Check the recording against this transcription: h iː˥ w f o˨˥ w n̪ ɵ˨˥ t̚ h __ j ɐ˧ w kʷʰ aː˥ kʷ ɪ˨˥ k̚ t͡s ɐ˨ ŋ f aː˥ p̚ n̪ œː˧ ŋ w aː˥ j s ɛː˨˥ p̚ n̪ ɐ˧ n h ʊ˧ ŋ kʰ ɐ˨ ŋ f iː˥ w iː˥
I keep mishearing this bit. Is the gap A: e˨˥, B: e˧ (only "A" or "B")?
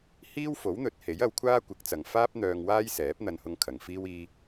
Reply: A